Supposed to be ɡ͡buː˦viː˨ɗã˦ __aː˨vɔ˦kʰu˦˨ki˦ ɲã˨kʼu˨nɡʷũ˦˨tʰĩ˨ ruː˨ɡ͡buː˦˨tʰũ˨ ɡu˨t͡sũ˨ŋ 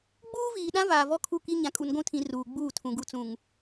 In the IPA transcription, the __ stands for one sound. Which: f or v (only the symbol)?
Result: v